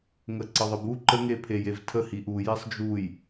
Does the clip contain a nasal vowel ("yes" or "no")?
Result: no